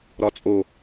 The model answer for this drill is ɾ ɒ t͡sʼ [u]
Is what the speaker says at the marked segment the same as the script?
no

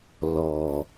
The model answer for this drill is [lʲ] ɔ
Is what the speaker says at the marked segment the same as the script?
no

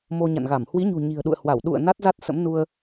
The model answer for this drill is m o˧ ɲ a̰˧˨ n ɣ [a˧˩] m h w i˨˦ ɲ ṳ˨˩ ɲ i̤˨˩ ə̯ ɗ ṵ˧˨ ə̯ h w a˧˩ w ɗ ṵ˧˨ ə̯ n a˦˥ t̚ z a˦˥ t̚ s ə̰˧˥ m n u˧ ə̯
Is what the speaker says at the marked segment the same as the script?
yes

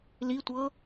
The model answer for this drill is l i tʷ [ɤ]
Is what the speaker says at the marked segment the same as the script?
yes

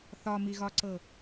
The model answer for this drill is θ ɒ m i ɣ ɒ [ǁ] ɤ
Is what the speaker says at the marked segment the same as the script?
no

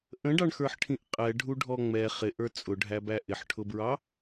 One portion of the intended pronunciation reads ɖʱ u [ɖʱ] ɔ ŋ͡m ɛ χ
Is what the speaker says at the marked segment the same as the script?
yes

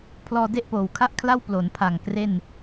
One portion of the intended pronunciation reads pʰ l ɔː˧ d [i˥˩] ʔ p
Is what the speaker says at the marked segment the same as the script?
no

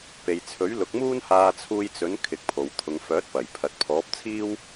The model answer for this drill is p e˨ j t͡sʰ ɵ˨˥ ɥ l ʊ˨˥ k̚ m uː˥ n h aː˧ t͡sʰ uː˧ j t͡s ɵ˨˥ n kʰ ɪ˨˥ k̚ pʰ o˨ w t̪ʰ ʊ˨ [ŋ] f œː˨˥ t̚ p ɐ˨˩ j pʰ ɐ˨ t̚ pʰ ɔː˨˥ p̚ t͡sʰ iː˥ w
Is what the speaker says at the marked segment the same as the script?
yes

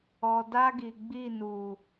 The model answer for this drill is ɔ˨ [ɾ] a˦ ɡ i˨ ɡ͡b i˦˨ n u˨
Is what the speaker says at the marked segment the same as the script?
no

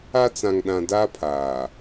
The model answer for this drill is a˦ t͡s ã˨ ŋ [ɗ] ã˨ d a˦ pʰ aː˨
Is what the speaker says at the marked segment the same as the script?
yes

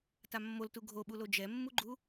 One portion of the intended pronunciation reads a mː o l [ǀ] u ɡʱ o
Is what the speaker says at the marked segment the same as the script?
no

